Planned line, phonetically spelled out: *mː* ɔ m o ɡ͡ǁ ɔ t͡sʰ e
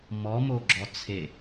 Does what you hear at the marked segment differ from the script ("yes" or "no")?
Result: yes